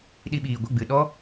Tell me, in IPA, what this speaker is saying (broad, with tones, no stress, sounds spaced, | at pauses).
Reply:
ɗ i˧ ɓ iː˨ ɡʷ ə˦˨ ɡ͡b ɨ˨ ɗ ɔ˦